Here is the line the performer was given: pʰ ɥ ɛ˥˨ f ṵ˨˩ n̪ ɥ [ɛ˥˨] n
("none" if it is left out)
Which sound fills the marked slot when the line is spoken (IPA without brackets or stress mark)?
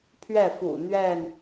ɛ˥˨